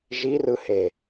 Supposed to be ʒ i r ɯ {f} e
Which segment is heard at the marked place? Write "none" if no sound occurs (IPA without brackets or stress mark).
h